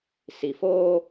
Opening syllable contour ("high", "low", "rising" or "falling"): low